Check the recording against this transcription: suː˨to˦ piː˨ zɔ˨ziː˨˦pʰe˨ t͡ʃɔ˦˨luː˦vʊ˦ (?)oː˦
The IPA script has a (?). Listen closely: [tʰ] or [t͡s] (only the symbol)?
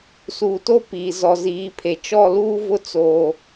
t͡s